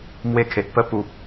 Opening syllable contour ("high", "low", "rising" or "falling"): high